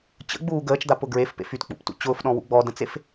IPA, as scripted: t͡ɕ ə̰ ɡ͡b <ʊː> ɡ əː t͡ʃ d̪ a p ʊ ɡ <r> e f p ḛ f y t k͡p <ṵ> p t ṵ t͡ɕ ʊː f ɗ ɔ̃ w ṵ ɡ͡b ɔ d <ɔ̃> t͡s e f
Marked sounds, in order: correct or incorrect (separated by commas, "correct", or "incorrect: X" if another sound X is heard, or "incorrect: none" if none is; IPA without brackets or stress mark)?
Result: incorrect: uː, incorrect: ɹ, correct, incorrect: ə̃